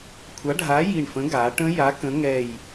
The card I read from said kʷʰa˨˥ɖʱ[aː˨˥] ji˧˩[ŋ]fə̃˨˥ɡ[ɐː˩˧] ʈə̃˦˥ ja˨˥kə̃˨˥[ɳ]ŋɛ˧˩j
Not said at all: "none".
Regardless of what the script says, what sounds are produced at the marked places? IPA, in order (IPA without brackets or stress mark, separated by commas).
aː˨˥, ɳ, aː˩˧, none